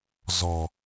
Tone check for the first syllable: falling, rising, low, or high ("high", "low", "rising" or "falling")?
low